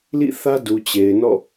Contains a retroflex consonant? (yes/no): no